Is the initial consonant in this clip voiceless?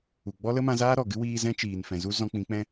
no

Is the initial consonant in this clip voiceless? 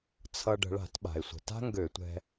yes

